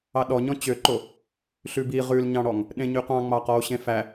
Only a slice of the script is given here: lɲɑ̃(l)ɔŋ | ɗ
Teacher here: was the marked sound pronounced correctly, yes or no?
no